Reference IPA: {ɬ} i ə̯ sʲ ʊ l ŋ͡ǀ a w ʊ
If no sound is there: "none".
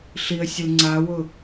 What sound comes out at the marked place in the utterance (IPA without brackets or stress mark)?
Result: ɬ